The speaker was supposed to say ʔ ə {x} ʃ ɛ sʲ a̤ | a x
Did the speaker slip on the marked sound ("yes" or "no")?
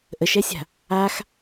yes